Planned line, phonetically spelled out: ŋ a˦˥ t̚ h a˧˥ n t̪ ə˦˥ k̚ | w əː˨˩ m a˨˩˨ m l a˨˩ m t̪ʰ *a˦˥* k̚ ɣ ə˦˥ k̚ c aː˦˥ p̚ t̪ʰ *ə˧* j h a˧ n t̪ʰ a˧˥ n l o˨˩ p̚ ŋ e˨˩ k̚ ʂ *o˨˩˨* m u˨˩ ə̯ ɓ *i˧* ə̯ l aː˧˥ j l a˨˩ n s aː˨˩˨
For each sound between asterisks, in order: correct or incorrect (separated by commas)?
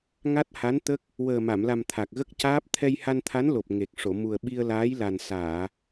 incorrect, incorrect, correct, correct